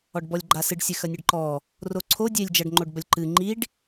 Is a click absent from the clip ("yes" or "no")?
no